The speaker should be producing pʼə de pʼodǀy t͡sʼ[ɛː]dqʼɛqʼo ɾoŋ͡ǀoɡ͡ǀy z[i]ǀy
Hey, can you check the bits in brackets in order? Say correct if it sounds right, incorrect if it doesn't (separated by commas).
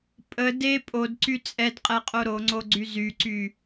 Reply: incorrect, incorrect